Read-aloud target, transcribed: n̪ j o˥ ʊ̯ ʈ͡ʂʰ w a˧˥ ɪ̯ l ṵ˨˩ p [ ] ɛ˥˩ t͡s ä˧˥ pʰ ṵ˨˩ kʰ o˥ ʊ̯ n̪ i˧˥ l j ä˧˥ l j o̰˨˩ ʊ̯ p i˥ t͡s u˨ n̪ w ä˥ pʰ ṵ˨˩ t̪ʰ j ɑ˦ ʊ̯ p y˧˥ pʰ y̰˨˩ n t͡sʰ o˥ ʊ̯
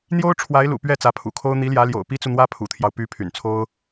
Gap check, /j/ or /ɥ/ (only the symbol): ɥ